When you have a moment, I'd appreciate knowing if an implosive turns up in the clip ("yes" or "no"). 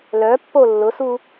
no